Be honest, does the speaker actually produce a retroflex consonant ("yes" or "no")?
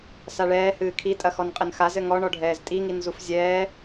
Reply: yes